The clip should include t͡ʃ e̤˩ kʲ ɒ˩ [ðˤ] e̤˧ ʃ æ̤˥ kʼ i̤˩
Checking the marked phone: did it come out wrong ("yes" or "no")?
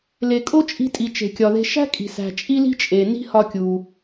yes